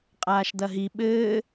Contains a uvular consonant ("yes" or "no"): yes